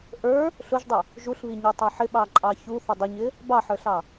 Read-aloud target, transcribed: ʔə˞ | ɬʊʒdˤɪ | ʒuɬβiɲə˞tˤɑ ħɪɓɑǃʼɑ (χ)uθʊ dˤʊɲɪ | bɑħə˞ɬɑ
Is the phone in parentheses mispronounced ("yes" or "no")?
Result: yes